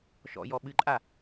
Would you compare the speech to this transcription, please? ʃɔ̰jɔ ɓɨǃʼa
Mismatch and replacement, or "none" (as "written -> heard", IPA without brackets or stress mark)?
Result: none